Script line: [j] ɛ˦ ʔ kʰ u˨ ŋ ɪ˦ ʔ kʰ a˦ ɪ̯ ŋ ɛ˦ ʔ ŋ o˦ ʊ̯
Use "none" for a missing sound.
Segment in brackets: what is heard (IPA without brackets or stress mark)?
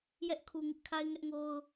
j